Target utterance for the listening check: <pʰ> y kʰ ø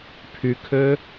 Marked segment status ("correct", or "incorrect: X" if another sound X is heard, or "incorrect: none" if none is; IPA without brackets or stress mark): correct